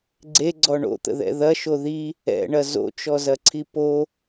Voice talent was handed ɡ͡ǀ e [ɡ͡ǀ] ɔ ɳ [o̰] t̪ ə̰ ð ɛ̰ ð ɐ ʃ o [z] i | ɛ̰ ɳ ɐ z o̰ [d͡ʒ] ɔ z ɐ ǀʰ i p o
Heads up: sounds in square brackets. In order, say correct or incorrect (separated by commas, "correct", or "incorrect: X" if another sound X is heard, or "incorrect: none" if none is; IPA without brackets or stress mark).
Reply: correct, correct, incorrect: ð, incorrect: t͡ʃ